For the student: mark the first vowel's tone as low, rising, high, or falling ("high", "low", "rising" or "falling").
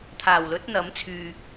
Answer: low